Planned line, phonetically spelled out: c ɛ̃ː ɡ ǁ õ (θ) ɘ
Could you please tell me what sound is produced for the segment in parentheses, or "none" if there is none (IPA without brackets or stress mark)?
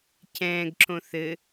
θ